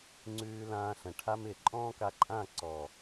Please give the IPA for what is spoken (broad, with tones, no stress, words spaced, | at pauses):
ŋ͡ǀʉː˧lãː˧ɬə̃˨ ʈʰa˧mɪː˨ ǃʼɔ̃ː˦ka˧ǃʼã˦˨ ǀɔ˨